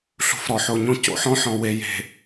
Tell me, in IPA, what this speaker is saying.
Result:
ɬṳ˨fɾɔ˨ħo˨ɲõ˦ co̰˦ħɔ̃˦ħɔ̃˨ we˨je̤˨

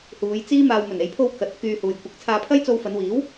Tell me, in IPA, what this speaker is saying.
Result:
huː˨˧jt͡siː˥maː˧w mɵ˨˩ne˨jpʰo˧w kɐ˨˥t̚ kyː˧huː˨j kʷɪ˨˥k̚t͡sʰaː˧pʰɐ˥j t͡so˧wfɐ˨˧nwiː˨˥w

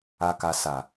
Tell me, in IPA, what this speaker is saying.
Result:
a˨ka˨ sa˨

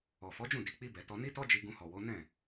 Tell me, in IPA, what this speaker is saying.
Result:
ɔ˨ fɔ˨˦d͡ʒũ˦˨ di˨˦k͡pi˦bɛ˧ tɔ˧ ni˦tɔ˦d͡ʒi˧ ɡũ˧hɔ˨ wo˨˦ nɛ̃˦˨

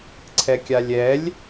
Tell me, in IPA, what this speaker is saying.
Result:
ǀʰɛkʲalʲɛlʲ

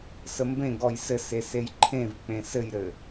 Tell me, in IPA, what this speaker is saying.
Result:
səmbẽ ɡɔjsɘse sejǃʰẽvk͡pẽ sɘjɾɘ

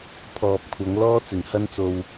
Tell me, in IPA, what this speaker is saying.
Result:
pʰɔː˨p̚kʷʰɐ˨˧ŋ lɔː˥t͡sɪ˨˩ŋhɐ˥nt͡so˧w

